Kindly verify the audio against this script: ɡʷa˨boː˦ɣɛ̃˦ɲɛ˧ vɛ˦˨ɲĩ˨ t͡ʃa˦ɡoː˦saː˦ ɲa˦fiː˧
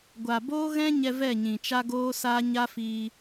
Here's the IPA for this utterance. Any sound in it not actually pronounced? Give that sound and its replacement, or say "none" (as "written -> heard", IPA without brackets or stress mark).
none